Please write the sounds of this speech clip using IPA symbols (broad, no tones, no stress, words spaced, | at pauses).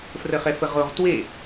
frəχɛfəʁoʁ twe